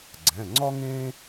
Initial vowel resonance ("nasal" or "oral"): nasal